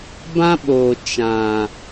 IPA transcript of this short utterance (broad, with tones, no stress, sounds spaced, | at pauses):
b ã˦ ɓ oː˨ t͡ʃ ã˨